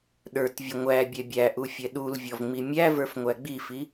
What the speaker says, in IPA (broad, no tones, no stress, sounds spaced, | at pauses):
ɗ ə˞ t vʲ ʊ ŋʷ æ bʲ ɛ bʲ æ ʔ u fʲ ɛ ɗ u l vʲ ɔ v ŋ͡m i mʲ æ v ə˞ f ŋʷ æ ɡ͡b i f i